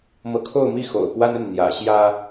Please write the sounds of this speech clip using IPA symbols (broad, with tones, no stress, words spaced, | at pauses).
mɤ˧˥kʰo˥˧ʊ̯mi˥˩ xo̰˨˩ʊ̯pwa˥nə˥˩n n̪jä̰˨˩ɕjä˥